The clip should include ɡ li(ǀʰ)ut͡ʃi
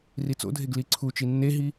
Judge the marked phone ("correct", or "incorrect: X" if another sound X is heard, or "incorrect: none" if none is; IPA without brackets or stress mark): correct